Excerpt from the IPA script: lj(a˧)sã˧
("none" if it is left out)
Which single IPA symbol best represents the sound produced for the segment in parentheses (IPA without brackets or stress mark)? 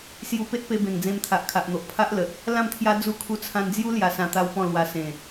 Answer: a˧